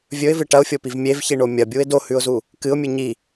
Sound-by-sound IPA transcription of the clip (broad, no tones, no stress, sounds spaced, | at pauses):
vʲ ɵ ɪ̯ v ɨ ʈ ɐ ʊ̯ fʲ o p i v mʲ e v ç i ɳ o mʲ ɐ bʲ u ɪ̯ d o h ʉ ʊ̯ z u | k ɨ ʊ̯ mʲ ɨ ɲ i